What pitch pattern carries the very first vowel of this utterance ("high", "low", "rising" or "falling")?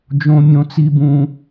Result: high